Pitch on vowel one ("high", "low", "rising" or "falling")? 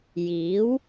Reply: rising